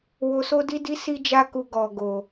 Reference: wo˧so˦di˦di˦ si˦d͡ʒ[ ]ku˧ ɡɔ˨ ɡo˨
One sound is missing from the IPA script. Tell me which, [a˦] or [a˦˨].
a˦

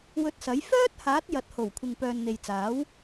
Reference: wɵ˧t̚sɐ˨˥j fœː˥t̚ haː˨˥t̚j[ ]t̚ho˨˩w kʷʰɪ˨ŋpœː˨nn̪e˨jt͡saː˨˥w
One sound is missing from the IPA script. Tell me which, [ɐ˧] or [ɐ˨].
ɐ˨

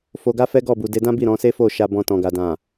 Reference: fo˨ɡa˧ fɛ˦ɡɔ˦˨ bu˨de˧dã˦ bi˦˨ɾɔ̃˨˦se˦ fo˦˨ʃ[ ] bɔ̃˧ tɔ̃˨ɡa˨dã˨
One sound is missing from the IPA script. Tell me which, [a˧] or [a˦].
a˧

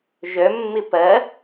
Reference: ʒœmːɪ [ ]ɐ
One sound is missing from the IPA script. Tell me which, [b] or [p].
p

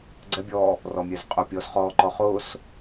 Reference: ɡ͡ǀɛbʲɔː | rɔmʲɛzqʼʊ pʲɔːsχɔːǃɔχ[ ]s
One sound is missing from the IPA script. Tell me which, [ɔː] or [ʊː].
ʊː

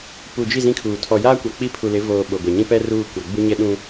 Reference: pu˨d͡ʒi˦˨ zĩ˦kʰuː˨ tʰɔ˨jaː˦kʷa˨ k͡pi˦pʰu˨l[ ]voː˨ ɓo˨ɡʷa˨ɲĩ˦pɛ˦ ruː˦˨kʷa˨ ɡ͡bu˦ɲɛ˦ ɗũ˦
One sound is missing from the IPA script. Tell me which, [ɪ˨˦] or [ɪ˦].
ɪ˨˦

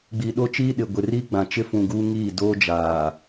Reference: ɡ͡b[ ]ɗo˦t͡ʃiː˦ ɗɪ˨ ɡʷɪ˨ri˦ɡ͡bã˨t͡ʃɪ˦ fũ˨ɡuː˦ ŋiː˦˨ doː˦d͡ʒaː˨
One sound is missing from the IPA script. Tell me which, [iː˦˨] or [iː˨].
iː˨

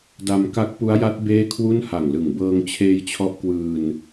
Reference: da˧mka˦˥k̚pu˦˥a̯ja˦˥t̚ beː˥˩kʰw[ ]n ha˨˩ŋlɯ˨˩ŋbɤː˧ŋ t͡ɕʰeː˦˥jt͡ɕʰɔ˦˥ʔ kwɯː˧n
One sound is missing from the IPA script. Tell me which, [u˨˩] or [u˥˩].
u˥˩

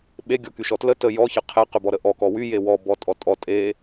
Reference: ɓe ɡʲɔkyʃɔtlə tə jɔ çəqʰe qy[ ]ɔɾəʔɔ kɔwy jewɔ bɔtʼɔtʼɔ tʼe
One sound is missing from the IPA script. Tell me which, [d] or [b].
b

